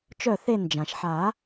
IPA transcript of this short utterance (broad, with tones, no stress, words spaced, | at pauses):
t͡ʃœ˧˩θe˧˩nd͡ʒã˩ʃħa˨˩˦